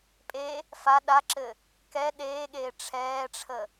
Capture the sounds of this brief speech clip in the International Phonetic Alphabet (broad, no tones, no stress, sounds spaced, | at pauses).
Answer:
pʼ e | f a ɗ a ǁ ɘ | k ɛ ɗ eː ɠ eː ʈ͡ʂʰ ɛː ʈ͡ʂʰ ə